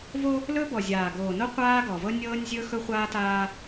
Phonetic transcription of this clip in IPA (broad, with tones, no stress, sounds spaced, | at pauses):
v o˦ | l ɵ˦ b ɔ˨ zʲ aː˨ ɡ oː˨ n o˦ qʷ aː˦ ɡ ɔ˨ v ɤ˦ nʲ ɤː˦ nʲ zʲ ɵ˦ x ɵ˦ χʷ aː˦ t aː˦